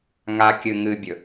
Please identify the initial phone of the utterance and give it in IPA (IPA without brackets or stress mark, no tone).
ŋ